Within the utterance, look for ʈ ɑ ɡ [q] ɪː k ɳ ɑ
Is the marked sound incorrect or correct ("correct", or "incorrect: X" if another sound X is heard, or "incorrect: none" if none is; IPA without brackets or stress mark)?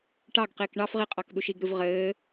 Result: correct